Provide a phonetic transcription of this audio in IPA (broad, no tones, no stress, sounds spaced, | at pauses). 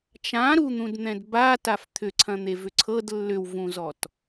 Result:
t͡ʃ ã ɾ u n̪ ũ d n̪ ɛ̃ d b a t a f t̪ʰ ʏ ǀʰ ɐ̃ n̪ e v ʏ ǀʰ ɤ d lː ʏ w v ũ z ɔ t